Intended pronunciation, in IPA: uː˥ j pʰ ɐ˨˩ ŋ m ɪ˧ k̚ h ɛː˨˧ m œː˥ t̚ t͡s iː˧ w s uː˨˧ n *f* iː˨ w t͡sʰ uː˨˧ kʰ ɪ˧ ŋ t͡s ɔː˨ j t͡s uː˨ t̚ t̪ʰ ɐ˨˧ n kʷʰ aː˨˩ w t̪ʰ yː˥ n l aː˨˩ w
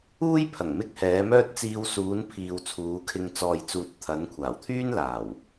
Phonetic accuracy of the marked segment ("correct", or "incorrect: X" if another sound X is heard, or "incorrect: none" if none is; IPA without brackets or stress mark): incorrect: pʰ